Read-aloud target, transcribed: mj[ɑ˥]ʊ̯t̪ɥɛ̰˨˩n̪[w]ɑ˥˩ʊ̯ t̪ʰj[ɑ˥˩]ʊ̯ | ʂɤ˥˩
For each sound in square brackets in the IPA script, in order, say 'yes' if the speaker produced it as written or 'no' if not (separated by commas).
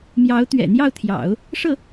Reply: no, no, no